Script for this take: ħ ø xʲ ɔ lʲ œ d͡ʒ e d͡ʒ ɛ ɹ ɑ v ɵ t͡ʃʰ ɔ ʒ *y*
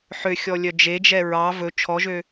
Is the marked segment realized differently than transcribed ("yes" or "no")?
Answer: yes